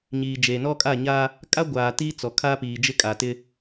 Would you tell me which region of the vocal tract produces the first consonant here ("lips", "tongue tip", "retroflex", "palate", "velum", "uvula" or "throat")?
palate